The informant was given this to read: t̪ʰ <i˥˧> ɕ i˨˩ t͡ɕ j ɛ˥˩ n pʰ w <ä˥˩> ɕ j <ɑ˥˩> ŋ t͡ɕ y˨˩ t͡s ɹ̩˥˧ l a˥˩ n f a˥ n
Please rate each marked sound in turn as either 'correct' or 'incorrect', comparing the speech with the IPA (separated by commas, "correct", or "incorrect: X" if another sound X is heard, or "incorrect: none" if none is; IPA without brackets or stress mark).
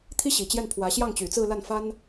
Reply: incorrect: i˥, incorrect: ä˧˥, correct